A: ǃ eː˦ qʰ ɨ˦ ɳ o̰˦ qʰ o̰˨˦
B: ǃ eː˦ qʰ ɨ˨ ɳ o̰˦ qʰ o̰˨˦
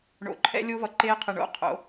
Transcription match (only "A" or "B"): B